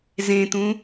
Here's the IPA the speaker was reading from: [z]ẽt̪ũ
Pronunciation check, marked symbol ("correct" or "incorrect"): correct